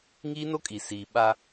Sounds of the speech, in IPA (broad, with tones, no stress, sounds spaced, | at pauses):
ŋ iː˦ n o˦ kʼ i˨ s iː˨ ɓ a˦